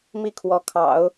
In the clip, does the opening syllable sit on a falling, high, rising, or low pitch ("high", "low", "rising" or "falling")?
falling